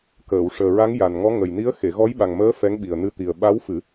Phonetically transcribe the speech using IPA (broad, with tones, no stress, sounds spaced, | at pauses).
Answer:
k əː˨˩˨ w ʂ əː˨˩ ɹ a˧˥ ŋ j a˨˩ n ŋ ɔ˧˥ ŋ ə˨˩ j n i˧˥ ə̯ x e˨˩˨ ɣ ɔ˧˥ j ɓ a˨˩ ŋ m əː˧˥ f ɛ˧˥ ŋ ɓ i˨˩ ə̯ n ɨ˧ t̪ i˨˩ ə̯ ɓ a˧˥ w f ɨ˨˩˦